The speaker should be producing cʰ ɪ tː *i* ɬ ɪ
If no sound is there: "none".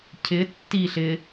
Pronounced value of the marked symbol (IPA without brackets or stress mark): i